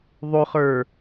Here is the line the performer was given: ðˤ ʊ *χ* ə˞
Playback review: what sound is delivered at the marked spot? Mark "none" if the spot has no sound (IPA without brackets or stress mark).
χ